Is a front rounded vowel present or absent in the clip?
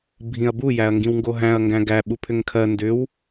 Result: present